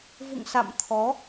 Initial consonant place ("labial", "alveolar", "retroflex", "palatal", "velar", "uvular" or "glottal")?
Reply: labial